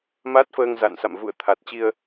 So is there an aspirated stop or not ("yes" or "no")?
yes